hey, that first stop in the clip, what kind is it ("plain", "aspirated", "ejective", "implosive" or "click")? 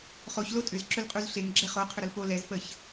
ejective